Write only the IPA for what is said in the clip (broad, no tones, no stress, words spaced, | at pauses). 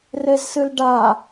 rezsɨlɖa